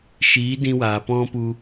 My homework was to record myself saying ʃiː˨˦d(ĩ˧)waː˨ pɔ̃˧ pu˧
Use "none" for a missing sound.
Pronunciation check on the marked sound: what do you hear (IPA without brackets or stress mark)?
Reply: ĩ˧